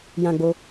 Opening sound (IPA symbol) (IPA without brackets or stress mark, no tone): j